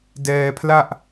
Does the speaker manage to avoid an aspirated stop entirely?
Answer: no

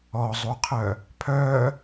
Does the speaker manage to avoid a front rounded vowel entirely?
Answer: no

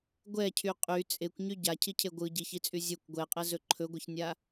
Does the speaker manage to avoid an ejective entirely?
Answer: no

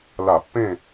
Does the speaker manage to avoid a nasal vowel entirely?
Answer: no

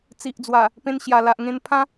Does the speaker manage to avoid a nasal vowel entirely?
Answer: no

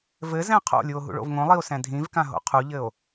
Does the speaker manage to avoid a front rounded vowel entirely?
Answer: yes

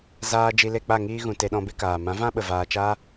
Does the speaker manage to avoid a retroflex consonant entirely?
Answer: yes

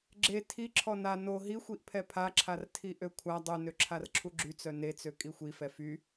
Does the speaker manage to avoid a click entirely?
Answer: no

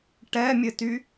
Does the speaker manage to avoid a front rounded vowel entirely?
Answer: no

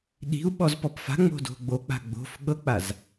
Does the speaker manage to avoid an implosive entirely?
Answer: no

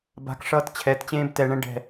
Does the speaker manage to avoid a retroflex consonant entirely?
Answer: no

